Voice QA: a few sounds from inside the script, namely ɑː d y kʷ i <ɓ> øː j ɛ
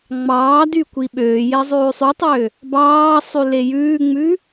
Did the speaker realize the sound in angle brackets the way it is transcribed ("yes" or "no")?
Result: yes